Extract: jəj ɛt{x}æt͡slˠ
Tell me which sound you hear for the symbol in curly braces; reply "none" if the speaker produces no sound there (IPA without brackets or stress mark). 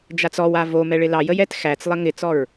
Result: x